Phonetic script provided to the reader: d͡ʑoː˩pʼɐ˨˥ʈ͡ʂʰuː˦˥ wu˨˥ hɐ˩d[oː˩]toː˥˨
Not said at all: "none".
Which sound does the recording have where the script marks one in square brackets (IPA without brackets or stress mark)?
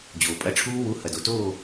o˩